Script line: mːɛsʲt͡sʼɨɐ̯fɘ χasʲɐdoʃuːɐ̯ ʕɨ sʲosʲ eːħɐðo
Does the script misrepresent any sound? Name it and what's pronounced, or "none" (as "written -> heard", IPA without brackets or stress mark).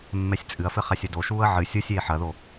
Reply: none